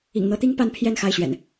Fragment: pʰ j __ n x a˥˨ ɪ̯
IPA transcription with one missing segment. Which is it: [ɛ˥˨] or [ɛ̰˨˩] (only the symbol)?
ɛ˥˨